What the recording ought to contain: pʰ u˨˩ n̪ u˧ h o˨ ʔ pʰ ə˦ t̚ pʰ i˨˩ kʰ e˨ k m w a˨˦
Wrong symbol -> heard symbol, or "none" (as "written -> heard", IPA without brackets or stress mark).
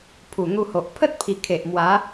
k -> ʔ